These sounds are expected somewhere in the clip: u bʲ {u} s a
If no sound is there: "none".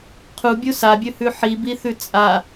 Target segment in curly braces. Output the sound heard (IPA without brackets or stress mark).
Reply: u